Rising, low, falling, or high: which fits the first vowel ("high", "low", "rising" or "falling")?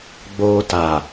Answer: high